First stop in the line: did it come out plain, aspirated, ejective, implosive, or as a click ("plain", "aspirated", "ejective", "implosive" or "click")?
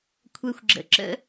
aspirated